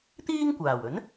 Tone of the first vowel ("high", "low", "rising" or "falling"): high